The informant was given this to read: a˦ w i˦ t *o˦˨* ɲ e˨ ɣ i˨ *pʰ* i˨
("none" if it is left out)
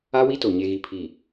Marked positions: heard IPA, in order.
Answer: o˨, pʰ

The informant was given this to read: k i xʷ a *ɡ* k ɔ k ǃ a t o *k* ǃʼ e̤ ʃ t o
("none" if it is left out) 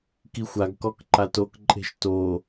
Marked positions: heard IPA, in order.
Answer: ɡ, k

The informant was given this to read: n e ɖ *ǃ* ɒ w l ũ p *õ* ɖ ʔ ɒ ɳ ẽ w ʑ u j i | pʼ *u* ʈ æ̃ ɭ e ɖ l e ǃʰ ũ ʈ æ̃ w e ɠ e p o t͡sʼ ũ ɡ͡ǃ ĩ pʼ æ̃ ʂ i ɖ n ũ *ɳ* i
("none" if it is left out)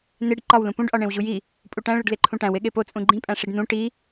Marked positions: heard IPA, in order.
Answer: ǃ, ũ, u, ʈ

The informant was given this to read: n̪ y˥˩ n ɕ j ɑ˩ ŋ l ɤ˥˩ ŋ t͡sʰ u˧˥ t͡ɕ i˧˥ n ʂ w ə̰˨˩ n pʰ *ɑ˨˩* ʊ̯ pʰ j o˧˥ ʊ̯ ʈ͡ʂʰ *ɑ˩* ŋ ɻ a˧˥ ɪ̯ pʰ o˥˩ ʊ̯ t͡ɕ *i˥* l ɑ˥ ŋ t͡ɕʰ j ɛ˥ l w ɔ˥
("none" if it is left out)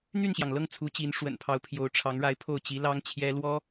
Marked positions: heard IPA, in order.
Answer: ɑ˧˥, ɑ˧˥, i˧˥

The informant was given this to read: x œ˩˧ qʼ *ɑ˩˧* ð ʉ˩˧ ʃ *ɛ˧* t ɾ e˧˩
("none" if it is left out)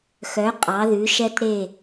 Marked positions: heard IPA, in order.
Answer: ɑ˩˧, ɛ˧

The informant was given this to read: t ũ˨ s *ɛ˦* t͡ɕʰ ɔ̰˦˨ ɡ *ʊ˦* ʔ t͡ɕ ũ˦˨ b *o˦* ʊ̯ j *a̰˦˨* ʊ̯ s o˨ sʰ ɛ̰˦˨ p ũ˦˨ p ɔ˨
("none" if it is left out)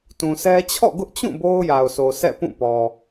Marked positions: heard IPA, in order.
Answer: ɛ˦, ʊ˦, o˦, a˨

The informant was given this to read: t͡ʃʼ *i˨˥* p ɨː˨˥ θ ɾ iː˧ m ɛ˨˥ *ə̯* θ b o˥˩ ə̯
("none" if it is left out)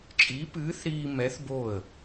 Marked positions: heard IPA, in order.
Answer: i˨˥, none

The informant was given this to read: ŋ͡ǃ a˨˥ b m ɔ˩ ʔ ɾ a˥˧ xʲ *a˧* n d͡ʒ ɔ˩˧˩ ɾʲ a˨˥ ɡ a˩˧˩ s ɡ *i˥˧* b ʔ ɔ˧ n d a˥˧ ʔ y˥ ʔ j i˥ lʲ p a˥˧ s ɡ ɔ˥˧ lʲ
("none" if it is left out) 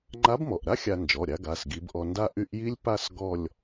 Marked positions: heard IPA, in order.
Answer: a˧, i˨˥

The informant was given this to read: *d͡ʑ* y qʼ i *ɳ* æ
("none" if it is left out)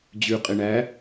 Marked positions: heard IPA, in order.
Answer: d͡ʑ, ɳ

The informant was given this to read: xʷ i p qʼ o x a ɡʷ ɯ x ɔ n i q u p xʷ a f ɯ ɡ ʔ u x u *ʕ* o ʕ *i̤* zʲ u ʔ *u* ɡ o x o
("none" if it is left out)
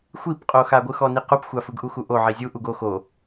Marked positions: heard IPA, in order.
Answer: ʔ, i, u

